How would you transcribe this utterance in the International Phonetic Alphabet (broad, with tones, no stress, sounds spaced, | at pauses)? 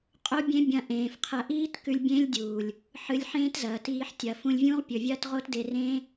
qʼ o˦ bʲ ẽ˦ bʲ ɐ̃˦ ʔ ẽː˨ f qʰ ɐ˧ ʔ iː˦ t k ʉ˧ lʲ bʲ ẽ˦ lʲ dʲ u˨ lʲ | ħ ɨ˧ lʲ ħ ẽː˦ t z ɐː˨ t iː˧ ħ tʲ ɐ˨ f ũ˧ lʲ vʲ ũː˦ ʁ pʲ ɵ˨ vʲ ɐː˦ t ʁ o˦ t d e˧ r ẽ˦